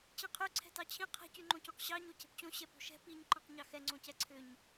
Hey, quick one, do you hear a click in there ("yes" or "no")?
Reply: yes